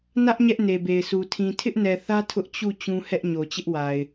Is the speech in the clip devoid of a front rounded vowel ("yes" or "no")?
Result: yes